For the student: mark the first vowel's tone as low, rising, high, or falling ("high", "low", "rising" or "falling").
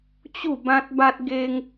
falling